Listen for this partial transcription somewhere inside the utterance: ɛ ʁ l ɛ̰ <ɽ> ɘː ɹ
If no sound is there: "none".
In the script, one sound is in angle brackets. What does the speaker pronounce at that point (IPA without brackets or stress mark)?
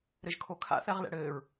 ɽ